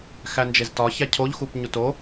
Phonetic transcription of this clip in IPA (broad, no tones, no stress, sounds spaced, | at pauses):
x æ n d͡ʒ e z t ɒ ç æ cʰ o ʎ x u p ɲ u t o